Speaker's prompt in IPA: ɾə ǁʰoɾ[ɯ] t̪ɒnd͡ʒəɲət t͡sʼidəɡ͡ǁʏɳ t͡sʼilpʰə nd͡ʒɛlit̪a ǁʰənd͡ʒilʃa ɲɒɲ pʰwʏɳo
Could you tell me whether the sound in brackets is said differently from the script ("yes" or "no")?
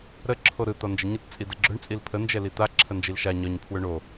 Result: no